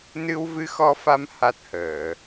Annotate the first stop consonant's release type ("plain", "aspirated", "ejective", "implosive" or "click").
plain